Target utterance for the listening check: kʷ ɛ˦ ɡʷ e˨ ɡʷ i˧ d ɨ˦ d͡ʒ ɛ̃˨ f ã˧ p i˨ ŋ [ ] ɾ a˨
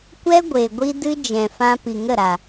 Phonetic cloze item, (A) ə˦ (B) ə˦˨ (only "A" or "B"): B